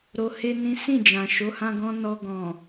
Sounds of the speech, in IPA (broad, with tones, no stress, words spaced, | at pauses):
ɾo˧ he˦nĩ˦ sĩ˦˨d͡ʒã˨ ʃo˨˦hã˧ɡɔ̃˧ nɔ˧ ɡɔ̃˨